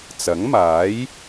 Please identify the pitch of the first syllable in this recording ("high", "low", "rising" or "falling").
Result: rising